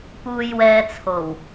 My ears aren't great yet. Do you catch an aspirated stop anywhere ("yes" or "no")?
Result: yes